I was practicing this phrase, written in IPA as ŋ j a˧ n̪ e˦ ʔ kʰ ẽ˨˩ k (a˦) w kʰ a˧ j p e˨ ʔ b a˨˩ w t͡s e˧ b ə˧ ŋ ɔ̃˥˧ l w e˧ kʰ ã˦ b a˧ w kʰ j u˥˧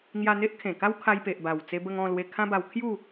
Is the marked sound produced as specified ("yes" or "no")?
yes